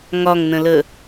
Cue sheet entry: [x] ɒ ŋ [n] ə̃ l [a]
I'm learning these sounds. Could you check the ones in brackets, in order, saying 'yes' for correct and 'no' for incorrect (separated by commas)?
no, yes, no